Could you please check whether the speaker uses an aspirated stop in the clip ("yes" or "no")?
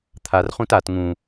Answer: yes